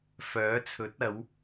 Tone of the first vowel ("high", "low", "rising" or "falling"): rising